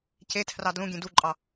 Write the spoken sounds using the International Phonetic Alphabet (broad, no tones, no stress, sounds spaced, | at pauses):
c e tʰ r ɑ d l ũ ɡʲ ẽ d u ǃʼ ɑ